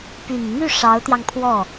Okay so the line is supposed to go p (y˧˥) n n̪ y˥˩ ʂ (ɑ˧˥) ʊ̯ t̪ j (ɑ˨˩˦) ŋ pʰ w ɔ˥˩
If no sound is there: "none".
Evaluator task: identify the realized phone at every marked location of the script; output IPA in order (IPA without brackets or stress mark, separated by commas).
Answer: y˨˩, ɑ˧˥, ɑ˧